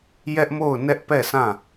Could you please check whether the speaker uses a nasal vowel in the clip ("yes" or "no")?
yes